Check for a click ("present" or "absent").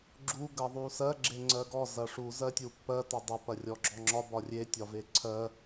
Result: present